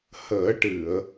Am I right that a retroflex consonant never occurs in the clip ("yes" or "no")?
no